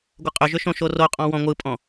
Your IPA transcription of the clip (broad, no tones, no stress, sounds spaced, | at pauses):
ɡʷ ə qʼ ʏ ʒ ʏ ʃ õ ʃ o r o qʼ ɔ̃ w ɔ̃ ŋʷ ɯ pʼ ɔ̃